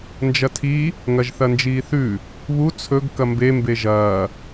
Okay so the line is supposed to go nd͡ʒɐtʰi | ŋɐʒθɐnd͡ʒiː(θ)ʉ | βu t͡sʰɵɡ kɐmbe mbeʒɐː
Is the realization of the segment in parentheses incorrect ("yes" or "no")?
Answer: no